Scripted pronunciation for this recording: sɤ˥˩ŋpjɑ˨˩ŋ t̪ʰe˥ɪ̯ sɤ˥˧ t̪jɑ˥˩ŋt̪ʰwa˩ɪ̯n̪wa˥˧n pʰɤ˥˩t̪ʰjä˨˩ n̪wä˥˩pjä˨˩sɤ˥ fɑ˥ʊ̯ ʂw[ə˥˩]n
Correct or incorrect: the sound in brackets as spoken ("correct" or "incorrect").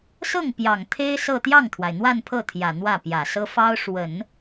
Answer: incorrect